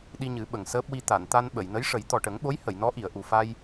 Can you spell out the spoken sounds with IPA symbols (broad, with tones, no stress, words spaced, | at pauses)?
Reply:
ɗi˧ɲɨ˨˩˦ɓə˨˩ŋ səː˦˥p̚wi˧ t̪a˨˩˨nt̪a˧n ɓə˨˩˨jnə˧˥jʂə˨˩˦j t̪ɔ˨˩ʈə˨˩˦ŋɓo˧˥j hə˨˩˨jnɔ˧˥ʔi˨˩˨ə̯ ʔu˨˩fa˧j